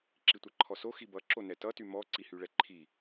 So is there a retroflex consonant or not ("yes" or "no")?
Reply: yes